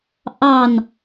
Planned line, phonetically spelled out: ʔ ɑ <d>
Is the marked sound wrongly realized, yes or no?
yes